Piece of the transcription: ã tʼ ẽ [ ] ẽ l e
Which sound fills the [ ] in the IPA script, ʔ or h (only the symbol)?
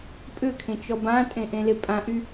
ʔ